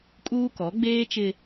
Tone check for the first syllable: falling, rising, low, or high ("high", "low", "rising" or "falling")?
high